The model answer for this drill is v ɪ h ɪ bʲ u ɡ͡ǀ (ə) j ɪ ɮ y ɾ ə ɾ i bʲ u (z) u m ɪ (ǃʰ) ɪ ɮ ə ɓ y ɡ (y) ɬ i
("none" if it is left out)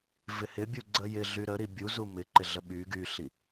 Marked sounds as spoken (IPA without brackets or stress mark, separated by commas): ə, z, ǃ, y